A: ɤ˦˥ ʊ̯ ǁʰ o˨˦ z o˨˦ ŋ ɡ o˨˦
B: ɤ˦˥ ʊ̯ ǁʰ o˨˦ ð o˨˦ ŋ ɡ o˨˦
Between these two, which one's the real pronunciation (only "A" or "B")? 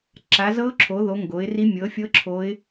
B